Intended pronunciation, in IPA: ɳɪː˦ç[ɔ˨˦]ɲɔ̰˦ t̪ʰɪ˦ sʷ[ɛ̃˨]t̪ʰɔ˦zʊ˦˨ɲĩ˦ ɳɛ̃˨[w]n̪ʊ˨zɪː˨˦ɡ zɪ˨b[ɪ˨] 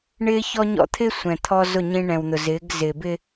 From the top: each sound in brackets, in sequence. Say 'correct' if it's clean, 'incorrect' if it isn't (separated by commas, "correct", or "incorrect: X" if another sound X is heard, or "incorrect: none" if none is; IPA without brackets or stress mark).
incorrect: ɔ˦, correct, correct, incorrect: ɪ˦